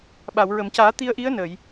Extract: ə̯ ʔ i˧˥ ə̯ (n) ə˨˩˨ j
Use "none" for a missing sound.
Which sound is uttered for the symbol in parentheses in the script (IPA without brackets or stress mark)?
n